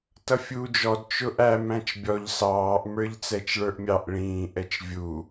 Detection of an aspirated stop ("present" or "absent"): absent